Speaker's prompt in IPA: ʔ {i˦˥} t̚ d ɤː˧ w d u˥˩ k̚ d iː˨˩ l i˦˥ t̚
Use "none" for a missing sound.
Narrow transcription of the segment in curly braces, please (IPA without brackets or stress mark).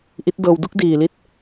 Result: i˦˥